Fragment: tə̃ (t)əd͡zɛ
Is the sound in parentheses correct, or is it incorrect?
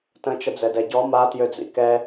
incorrect